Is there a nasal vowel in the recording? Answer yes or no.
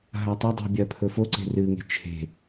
no